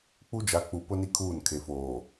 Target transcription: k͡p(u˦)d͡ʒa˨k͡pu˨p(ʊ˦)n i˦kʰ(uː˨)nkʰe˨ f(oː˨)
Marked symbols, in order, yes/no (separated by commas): yes, yes, no, yes